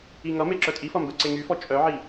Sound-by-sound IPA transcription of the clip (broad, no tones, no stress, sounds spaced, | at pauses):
i ŋ ʌ m e ǁ œ tʼ i f ʌ m b ɛ ǀ e ŋ y f ɔ t͡ʃʼ œ ʕ i